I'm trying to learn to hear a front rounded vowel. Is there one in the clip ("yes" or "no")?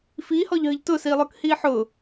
no